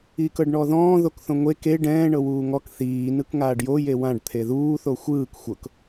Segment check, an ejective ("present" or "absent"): absent